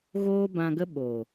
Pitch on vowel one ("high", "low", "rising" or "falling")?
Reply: high